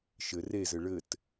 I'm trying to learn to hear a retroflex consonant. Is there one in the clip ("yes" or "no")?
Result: yes